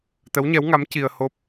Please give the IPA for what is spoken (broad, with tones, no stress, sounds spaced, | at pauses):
t̪ ə˧˥ w ɲ ɛ˧˥ w ŋ a˧˥ m c i˧ ə̯ h o˦˥ p̚